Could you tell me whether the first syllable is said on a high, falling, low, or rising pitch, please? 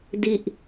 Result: low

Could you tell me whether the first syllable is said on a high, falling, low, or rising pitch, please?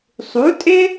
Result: rising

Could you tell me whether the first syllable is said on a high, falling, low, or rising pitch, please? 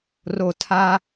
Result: low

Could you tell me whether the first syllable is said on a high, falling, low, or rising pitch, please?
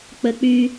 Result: low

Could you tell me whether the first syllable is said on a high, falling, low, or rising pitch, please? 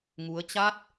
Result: rising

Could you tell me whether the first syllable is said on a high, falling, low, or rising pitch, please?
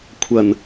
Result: low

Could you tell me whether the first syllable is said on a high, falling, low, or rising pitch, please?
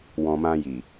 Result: low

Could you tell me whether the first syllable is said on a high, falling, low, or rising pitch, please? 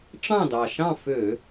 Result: falling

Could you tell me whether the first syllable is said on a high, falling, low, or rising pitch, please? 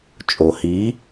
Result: low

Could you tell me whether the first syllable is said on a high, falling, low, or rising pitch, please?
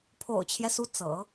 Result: low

